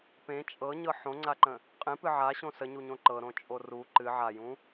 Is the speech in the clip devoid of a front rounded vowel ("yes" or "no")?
yes